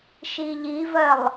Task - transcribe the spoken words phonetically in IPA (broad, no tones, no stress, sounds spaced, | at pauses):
ʃ i ʎ i v ɜ lˠ